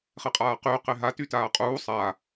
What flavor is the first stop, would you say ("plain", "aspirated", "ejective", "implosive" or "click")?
ejective